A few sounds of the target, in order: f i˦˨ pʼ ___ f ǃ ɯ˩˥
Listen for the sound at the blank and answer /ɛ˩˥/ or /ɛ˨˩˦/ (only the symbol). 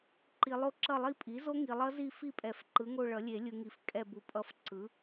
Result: ɛ˨˩˦